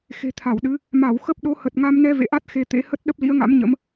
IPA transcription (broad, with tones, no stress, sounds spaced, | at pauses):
x e̤˨˩ t̪ʰ a˧˩ w ɗ ɨ˨˦ | m a˧˩ w x ə˦˥ p̚ ɗ o˨˦ h ə˨˩ t̚ ŋ a˧ m n ɛ˧ v ḛ˧˨ ʔ a˦˥ t̚ x e˧ t̪ ḛ˧˥ h ə˦˥ t̚ ɗ ə˦˥ p̚ l ḭ˧˥ ə̯ ŋ a̰˧˥ m ɲ ə̰˧˥ m